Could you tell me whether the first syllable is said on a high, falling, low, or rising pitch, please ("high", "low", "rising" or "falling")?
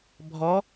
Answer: rising